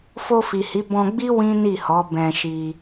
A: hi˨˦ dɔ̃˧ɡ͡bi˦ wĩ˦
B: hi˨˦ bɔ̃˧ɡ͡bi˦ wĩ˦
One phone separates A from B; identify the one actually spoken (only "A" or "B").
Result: B